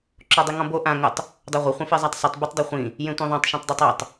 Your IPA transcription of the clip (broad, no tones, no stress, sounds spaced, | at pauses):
ǁ o dˤ e ŋ ɔ̃ b o ʔ ã ŋ ʊ tˤ | dˤ ɛ ʁʷ ɪ χʷ ẽ f i zˤ a tˤ sˤ i tˤ b ʊ tˤ dˤ ɛ χʷ ĩ | j ẽ tʷ ĩ ðˤ ã tˤ ʃ ẽ tˤ dˤ o tˤ ɔ tˤ